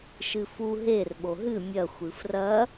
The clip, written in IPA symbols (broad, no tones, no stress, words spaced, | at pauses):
ʃɨfu ɦer ɓoɦɨ mʲɐxʷɨ frɐ